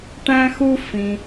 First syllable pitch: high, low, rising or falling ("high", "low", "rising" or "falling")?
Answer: high